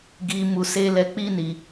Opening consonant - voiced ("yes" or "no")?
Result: yes